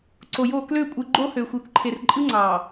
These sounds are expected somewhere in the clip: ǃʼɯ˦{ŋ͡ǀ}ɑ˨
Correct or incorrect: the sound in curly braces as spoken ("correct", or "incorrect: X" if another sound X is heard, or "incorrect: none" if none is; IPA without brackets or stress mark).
correct